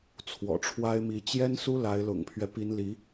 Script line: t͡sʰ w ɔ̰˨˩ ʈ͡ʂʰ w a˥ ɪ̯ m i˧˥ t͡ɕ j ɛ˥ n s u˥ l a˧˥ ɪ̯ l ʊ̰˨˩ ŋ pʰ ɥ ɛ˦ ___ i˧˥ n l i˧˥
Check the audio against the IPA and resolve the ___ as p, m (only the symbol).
p